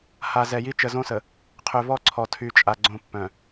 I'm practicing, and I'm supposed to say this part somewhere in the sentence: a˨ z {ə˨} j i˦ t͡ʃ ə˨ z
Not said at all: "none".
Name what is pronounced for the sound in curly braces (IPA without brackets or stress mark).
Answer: ɛ˨